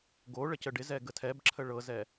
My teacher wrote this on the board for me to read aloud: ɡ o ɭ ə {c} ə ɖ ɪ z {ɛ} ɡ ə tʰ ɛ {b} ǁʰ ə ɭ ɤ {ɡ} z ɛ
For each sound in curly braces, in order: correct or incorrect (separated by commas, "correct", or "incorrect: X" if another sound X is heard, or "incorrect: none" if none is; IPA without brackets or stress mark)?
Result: correct, correct, correct, incorrect: none